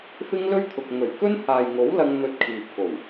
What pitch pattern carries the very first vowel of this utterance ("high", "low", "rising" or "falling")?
high